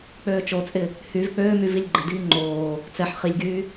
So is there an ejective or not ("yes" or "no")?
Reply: yes